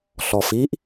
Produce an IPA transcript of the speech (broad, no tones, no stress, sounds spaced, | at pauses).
ɬ ɔ f i ʔ